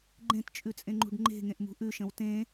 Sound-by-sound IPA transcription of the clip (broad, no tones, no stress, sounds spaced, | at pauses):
ɡ͡ǃ ẽ t t͡ʃʼ ʉ t͡sʼ ẽ ŋ͡ǃ ṳ ɖ ŋ͡ǃ e̤ ŋ ẽ ʔ m ṳ ʔ ʉ ʃ ə̃ w t ẽ